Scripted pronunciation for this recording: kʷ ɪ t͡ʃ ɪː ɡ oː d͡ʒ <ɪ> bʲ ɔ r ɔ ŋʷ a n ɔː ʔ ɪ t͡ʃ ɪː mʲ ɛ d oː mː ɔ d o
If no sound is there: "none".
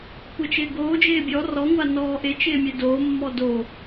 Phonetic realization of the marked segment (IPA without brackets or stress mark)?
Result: ɪː